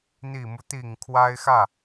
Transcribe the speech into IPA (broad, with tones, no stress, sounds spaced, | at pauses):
n̪ i˨˩ m u˦ t̪ i˨˩ ŋ kʰ w a˥ ɪ̯ x ä˥˩